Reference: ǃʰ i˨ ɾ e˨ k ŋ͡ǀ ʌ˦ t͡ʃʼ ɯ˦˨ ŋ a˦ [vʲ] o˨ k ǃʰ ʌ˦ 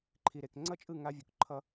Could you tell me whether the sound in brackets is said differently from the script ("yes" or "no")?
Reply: no